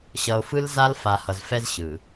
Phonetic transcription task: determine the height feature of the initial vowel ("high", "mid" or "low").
mid